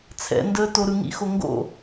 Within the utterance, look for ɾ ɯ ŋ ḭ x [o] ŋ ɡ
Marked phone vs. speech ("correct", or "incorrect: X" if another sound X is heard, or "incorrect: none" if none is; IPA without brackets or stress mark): correct